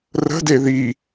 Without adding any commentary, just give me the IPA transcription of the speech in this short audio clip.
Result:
r ə̤ d e ð i

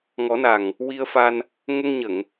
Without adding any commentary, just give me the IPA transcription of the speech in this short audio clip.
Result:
ŋ ɔ˨˩˦ n a˨˩ ŋ | w i˧ ə̯ f a˧ n | ŋ ə˧ ŋ ɲ ə˨˩˨ ŋ

